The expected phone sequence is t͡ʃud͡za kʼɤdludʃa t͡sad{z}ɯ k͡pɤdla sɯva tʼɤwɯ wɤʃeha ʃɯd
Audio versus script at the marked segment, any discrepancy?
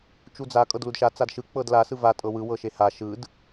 yes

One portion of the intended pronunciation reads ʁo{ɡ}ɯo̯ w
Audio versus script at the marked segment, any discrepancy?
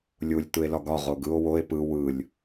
no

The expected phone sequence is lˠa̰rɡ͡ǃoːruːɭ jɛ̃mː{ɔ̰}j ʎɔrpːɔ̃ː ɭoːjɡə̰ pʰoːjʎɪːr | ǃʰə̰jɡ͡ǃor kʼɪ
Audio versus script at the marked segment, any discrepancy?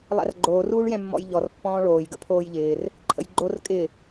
no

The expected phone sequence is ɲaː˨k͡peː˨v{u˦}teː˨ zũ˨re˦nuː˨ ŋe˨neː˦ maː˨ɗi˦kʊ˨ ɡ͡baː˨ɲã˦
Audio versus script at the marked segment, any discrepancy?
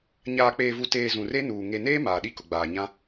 yes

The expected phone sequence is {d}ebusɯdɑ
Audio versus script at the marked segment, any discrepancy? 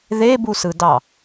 yes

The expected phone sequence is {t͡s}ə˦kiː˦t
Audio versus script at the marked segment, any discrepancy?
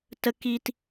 yes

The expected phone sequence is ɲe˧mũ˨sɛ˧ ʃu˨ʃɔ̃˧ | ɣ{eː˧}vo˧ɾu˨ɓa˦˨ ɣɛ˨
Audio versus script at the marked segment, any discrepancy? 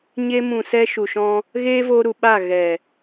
yes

